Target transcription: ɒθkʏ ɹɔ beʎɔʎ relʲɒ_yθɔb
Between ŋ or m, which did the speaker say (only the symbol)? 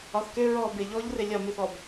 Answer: m